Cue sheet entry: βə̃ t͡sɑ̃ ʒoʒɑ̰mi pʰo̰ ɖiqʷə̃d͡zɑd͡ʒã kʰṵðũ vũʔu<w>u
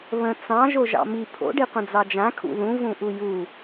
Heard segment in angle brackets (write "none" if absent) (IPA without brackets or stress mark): j